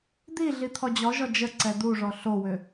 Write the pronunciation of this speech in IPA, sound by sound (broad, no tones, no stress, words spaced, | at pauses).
d̪i ɮit̪ʰɔd͡ʑɔʒɔ d͡ʒə ǀɛd̪uʐɔ ɬowʏ